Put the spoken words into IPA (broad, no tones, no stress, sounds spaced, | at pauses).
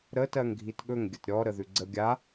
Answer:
ɾ ə t ɜ ŋ ɡʱ i t ɠ ɵ ŋ ɡʲ ə t ɾʲ ɔ ɾ ə ð ʉ ɡ͡ǀ ə ɡʲ a